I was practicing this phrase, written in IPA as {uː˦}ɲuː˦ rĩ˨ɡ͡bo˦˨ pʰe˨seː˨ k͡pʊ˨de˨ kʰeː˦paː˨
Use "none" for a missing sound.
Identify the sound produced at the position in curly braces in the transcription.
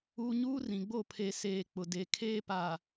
uː˨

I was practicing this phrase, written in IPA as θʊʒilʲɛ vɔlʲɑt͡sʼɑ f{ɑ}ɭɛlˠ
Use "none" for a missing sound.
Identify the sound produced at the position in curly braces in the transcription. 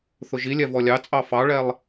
ɑ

